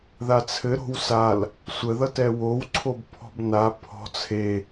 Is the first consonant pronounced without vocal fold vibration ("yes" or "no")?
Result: no